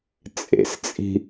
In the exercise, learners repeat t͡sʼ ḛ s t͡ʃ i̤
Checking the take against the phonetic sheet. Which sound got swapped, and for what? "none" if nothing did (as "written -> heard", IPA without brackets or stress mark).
t͡ʃ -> t͡sʼ